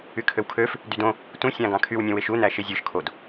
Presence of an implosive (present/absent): absent